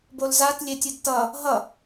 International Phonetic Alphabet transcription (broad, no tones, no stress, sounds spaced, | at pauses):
b o l z a t lʲ e tʲ ɯ d t ʌ | ɦ ʌ